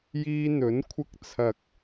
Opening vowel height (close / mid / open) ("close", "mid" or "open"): close